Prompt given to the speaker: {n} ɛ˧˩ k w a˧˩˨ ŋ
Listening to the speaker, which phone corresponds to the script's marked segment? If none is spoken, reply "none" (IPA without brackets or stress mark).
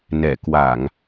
n